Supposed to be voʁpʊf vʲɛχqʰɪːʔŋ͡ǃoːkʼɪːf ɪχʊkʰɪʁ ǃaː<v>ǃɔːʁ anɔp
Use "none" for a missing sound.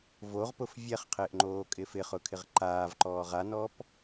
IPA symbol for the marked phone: v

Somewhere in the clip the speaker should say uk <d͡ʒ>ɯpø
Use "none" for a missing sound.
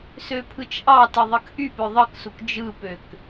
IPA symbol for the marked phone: d͡ʒ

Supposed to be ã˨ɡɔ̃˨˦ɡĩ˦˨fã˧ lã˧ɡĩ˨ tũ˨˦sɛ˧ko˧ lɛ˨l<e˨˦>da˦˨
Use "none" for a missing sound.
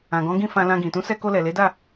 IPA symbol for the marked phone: e˨˦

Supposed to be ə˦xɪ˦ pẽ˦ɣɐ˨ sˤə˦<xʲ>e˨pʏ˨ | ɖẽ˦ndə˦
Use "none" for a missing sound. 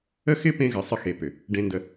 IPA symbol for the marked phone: x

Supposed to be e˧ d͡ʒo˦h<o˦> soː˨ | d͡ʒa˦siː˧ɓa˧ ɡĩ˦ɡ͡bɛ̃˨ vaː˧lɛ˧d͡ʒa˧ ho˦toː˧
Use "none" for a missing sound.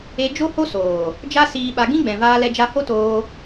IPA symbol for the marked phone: o˦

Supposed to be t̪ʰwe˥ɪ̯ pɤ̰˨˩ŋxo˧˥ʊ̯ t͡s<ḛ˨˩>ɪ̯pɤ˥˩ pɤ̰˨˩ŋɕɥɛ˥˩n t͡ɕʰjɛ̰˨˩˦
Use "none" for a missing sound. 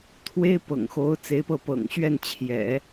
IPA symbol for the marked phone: e˧˥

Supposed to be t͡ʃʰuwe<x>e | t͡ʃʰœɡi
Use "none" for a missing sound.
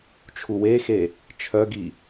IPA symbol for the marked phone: x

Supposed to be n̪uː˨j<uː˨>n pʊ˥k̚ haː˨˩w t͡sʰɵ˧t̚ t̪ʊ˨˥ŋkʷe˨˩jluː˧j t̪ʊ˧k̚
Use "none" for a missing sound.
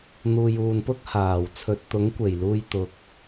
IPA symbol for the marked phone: uː˨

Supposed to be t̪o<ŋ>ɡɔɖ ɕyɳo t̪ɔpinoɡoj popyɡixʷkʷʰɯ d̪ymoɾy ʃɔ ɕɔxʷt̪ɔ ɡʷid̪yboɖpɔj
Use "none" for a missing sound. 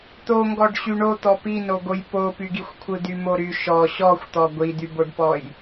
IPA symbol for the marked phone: ŋ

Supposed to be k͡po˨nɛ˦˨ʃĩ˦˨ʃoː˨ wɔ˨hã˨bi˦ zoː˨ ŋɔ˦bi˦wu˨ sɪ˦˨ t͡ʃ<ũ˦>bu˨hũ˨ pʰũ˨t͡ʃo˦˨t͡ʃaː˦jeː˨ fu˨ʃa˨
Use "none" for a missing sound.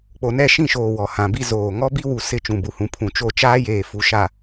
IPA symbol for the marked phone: ũ˨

